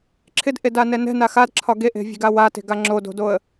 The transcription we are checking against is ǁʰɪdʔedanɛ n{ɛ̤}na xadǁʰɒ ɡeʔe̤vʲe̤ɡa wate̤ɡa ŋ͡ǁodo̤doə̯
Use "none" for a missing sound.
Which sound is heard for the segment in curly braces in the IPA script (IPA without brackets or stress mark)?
ɛ̤